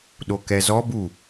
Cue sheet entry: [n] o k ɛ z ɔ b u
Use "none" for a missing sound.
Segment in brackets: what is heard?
ɗ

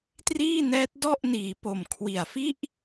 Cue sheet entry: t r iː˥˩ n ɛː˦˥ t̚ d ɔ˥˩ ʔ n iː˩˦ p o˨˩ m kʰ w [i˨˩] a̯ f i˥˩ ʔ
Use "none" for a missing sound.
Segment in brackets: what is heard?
i˨˩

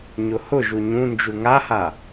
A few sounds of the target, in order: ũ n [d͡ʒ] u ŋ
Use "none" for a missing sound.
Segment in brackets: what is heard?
d͡ʒ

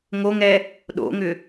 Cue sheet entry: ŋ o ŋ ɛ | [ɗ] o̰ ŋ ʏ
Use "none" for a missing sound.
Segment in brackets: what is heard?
ɗ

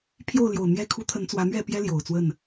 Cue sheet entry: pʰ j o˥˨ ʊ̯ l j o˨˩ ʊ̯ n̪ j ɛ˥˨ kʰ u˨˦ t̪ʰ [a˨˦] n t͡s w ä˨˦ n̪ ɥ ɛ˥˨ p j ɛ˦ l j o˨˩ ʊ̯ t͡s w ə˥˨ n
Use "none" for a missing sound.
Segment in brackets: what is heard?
ə˨˦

